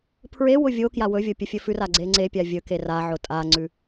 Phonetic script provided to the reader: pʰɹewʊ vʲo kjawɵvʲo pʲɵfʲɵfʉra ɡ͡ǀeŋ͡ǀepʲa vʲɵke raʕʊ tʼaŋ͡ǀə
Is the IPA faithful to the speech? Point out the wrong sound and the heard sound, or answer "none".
ə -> ʉ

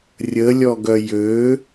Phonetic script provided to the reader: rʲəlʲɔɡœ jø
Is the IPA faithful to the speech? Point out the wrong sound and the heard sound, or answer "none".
none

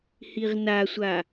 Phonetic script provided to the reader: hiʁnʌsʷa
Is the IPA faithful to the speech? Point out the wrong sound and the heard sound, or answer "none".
ʌ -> a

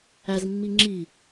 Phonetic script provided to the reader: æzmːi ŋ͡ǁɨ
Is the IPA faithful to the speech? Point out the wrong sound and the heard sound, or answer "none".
ɨ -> i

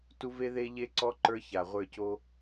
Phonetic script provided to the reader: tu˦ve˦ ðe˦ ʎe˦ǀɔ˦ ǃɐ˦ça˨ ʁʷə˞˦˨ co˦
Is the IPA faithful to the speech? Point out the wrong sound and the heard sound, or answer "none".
ɐ˦ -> ə˞˦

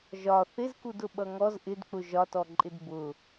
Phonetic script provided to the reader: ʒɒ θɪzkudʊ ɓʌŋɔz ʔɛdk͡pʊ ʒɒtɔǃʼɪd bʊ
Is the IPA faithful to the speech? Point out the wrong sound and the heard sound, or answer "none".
ɛ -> ɪ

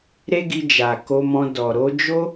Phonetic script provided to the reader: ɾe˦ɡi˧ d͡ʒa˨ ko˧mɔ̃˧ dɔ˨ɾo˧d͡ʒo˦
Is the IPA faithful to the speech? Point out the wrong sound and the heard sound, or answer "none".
none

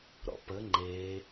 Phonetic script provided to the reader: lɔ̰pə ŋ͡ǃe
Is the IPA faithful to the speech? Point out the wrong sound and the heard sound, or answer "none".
l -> ɾ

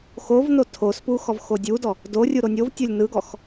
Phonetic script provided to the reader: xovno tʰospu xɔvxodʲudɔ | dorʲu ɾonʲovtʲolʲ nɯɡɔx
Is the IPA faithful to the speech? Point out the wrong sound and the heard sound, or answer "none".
none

